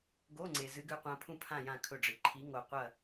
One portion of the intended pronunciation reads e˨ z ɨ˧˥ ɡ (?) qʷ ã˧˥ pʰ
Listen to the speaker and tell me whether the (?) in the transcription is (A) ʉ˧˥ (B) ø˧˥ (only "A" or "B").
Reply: A